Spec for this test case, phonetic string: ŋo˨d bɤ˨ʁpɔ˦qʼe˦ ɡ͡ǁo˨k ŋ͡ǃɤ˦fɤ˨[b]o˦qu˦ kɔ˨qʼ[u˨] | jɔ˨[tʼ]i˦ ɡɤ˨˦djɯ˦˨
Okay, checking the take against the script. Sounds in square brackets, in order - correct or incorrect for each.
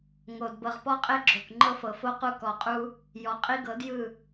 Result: incorrect, incorrect, incorrect

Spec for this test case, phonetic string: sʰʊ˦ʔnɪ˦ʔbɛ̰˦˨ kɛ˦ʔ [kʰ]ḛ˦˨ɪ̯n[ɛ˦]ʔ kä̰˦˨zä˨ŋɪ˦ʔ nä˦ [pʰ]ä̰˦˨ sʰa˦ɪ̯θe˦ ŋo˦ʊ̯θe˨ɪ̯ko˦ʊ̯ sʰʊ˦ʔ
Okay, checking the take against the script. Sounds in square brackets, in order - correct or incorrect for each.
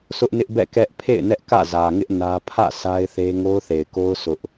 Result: incorrect, correct, correct

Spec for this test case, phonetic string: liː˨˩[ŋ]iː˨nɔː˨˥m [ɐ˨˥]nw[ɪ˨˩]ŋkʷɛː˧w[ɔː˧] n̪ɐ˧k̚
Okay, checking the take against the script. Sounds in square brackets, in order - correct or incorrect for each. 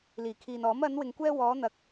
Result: incorrect, incorrect, incorrect, incorrect

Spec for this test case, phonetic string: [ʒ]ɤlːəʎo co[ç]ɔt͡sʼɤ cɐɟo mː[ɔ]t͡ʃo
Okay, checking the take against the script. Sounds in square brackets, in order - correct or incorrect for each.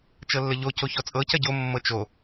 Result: incorrect, correct, incorrect

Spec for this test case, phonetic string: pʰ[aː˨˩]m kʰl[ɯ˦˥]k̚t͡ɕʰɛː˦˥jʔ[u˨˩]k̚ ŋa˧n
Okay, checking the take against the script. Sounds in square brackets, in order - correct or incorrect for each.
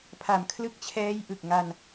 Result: incorrect, correct, incorrect

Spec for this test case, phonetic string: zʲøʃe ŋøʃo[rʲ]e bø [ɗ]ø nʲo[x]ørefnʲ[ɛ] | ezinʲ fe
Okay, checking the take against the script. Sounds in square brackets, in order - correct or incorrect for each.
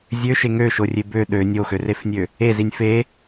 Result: correct, correct, correct, incorrect

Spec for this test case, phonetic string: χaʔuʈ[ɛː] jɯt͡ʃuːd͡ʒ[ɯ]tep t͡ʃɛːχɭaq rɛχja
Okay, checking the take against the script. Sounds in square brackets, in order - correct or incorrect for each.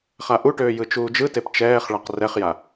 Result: incorrect, correct

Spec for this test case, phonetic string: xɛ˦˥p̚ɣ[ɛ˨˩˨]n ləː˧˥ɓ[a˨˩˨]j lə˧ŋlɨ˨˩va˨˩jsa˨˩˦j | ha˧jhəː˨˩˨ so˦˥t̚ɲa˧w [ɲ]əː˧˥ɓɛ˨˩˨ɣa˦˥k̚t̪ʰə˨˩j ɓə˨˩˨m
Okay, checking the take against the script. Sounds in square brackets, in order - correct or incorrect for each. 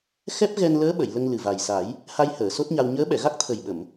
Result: incorrect, incorrect, correct

